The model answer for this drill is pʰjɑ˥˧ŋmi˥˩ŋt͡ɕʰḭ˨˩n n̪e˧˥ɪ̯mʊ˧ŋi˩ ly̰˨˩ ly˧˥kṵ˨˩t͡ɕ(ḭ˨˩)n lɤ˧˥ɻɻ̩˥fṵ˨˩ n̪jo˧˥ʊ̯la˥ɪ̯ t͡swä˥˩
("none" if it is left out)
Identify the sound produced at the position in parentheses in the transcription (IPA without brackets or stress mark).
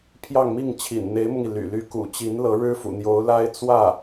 i˧˥